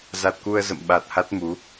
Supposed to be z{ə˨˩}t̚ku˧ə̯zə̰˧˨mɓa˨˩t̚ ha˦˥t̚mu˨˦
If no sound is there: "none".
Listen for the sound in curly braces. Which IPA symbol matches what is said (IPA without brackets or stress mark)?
a˨˩